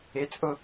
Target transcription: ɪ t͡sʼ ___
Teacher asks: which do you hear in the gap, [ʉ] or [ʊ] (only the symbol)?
ʊ